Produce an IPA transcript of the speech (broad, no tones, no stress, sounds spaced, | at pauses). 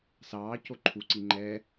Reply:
s ɑː c o ǃʰ u ǀ i ŋ͡ǃ ɛ